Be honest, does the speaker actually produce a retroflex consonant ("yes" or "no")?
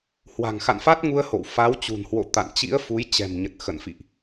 no